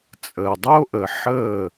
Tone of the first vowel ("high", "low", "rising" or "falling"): low